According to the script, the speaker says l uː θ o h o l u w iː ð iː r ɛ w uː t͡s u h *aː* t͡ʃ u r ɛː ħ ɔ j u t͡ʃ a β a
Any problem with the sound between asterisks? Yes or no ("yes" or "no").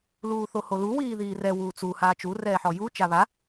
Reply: no